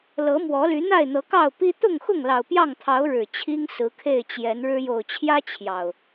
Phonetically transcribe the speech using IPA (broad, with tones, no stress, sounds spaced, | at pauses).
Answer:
l ɤ˨˦ m w ɔ˨˦ l y˨˦ n̪ a˥˨ ɪ̯ n̪ ɤ˨˦ k ɑ˥˨ ʊ̯ p i˦ t̪ ʊ˥˨ ŋ x ʊ˥˨ ŋ l ɑ˨˩ ʊ̯ p j ɑ˥˨ ŋ t̪ʰ ɑ˨˦ ʊ̯ ɻ ɻ̩˨˩ t͡ɕʰ i˦ ŋ s ɹ̩˨˦ kʰ e˥˨ ɪ̯ t͡ɕ j ɛ˨˦ n ɻ ɻ̩˦ j o˨˩ ʊ̯ t͡ɕʰ j ä˦ t͡ɕʰ j ɑ˨˩ ʊ̯